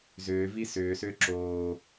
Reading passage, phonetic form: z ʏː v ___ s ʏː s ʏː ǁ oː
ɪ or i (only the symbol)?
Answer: i